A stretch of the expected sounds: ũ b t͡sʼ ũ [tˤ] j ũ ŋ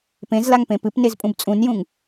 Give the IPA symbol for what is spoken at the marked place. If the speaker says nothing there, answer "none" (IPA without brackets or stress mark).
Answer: n